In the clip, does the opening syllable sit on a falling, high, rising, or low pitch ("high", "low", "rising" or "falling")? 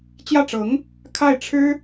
falling